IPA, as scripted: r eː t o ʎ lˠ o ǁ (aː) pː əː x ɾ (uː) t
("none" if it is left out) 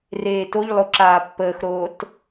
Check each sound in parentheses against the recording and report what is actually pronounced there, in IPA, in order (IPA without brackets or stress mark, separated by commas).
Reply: aː, oː